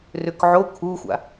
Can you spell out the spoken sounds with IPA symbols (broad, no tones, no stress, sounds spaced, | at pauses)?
r ʏ k ʕ o kʰ u xʷ a̰